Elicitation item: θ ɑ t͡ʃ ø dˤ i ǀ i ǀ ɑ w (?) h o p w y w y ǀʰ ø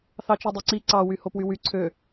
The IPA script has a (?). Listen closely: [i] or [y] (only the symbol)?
y